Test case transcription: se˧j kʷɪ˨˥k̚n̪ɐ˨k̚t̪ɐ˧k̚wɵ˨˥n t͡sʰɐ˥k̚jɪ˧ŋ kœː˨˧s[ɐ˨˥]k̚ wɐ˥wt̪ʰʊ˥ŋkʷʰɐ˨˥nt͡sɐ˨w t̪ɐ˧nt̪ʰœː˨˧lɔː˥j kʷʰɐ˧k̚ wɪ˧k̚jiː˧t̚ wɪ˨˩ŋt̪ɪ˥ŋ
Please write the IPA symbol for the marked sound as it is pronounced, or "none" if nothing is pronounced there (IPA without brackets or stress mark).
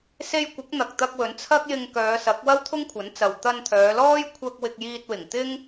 ɐ˨˥